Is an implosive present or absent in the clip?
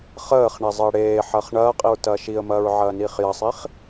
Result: absent